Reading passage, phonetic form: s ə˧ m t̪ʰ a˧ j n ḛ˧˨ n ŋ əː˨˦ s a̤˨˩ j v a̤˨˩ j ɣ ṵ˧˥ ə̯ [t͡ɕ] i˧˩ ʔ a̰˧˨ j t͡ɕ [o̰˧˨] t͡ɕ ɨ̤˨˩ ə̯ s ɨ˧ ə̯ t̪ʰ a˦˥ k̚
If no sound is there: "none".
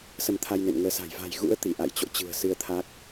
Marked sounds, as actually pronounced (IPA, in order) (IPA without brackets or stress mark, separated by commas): t̪, o̰˧˨